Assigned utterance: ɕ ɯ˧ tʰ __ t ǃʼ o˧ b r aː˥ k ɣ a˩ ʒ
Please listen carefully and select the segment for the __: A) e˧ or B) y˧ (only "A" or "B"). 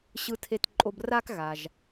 A